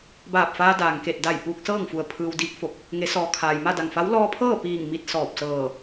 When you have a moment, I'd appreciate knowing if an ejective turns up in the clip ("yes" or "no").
no